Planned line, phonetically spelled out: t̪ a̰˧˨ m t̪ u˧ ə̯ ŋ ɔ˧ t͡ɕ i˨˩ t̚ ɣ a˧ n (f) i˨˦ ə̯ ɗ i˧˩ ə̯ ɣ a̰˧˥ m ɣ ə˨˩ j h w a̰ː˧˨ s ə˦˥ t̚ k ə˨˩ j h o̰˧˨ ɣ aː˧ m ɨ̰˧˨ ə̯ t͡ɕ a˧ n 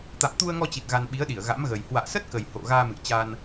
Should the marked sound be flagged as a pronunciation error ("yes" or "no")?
yes